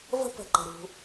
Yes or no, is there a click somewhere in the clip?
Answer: yes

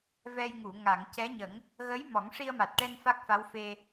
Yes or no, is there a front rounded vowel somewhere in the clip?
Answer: no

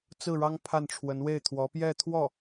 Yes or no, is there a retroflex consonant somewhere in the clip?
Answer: yes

